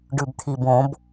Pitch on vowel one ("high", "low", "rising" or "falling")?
low